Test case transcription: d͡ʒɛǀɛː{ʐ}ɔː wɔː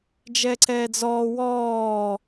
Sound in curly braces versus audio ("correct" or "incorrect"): incorrect